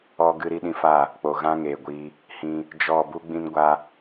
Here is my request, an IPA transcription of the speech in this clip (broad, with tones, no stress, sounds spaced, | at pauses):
ɔ˧ ɡ ɨ˧ ɾ i˧ ɗ ĩ˧ f a˦˨ | k͡p o˨ ɣ ã˦ ŋ eː˨ ɡʷ iː˧ | h ĩ˧ | d͡ʒ ɔ˦˨ b u˦ ɡ͡b ĩ˦ n ɡʷ a˦